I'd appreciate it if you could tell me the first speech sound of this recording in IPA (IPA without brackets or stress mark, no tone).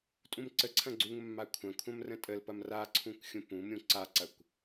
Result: tʼ